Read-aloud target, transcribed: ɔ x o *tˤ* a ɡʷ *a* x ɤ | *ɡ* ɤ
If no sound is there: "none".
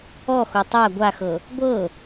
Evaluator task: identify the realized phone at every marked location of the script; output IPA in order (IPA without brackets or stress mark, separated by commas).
tˤ, a, ɡʷ